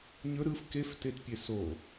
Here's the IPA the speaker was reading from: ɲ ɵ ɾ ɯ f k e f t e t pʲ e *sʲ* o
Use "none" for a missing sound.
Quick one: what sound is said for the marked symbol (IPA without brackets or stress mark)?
s